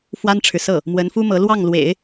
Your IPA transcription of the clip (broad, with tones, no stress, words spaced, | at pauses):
fwa˥nʈ͡ʂʰɻ̩˨sɤ˥˩ | mwə˧˥nfu˥mɤ˧˥lwɑ˥˩ŋ lwḛ˨˩˦ɪ̯